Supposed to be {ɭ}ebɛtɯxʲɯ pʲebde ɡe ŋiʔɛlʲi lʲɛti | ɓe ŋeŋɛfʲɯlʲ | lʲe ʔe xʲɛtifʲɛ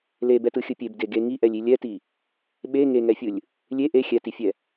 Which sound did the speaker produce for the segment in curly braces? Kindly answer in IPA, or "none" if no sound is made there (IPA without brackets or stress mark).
l